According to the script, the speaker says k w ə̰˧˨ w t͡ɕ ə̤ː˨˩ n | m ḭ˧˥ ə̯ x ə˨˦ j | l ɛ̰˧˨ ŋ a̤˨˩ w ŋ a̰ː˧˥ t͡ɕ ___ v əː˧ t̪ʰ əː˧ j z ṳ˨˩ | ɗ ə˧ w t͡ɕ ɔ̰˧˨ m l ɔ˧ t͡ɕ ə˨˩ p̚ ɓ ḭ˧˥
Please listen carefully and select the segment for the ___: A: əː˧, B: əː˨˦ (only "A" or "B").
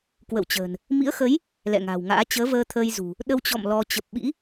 B